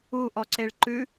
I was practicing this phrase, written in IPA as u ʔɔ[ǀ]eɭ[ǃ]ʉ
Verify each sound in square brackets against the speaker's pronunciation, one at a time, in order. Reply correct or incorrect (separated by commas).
correct, correct